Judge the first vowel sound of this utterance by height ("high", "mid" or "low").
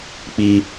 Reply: high